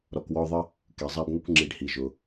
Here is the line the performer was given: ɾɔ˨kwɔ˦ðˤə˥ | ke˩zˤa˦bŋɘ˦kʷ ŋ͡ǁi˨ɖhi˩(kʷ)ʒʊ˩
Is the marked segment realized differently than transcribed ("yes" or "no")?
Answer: yes